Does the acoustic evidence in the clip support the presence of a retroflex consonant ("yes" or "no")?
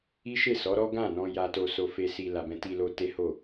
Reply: no